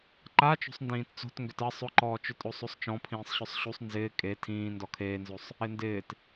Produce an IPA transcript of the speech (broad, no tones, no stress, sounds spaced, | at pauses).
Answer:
ǃ a t͡ʃ o̤ sˤ n d ĩː t t͡s o̤ t ŋ ɡ ʏ t ɐ sˤ ʊ ǃ ɔː t͡ʃ ʏ tʼ o sˤ o sˤ t͡ʃ ɔ̃ pʰ ĩː sˤ ɕ ʊ sˤ ɕ u sˤ n z ɪː kʼ e tʰ ĩː n d ɔ kʰ eː n z o sˤ | ɪ n d ɪː t